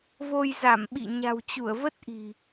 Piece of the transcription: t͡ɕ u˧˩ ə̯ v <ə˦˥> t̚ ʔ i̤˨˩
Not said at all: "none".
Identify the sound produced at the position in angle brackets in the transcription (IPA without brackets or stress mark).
ə˦˥